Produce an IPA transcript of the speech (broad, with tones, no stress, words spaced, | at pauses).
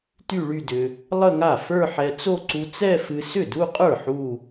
ty˥˧ɭy˥˧dʏ˧ | lˠə˥˧ŋa˥˩ fə˞˥˧ħɛ˧t͡so˥˧ ǀu˧t͡sɛ˥˧fɨ˧ sʏ˥˩du˥˧qʼə˞˥˩ ħu˥˧